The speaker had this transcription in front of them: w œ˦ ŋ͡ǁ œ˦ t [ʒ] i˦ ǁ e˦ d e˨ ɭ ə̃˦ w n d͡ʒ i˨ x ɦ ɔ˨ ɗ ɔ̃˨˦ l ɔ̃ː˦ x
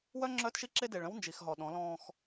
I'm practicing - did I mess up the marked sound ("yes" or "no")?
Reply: yes